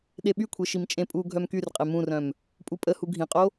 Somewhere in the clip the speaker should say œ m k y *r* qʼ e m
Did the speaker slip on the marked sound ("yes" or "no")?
no